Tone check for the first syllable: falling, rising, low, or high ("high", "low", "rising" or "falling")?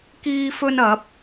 high